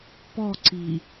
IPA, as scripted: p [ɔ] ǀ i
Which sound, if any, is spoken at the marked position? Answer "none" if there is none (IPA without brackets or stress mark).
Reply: ɔ